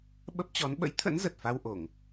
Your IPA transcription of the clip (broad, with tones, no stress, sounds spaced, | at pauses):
ɓ ə˦˥ p̚ t͡ɕ ɔ˨˦ n ɓ ə̰˧˥ j t̪ʰ ə̰˧˥ n z ə˨˩ t̚ f a˧ w ʔ o˧˩˨ ŋ